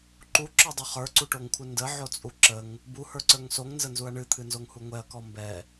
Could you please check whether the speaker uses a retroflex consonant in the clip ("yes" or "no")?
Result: yes